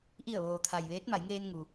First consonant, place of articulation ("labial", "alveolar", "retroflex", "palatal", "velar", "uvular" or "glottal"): glottal